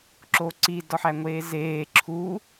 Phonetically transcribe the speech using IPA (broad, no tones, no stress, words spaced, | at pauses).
ǁoǀi dɒħæŋʷeːzeː ǁʰu